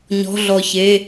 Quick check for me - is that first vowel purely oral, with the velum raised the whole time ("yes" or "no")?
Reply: yes